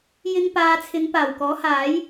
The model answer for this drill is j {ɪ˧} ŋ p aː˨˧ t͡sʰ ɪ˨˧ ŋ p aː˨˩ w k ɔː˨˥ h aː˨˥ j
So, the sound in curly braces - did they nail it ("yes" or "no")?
yes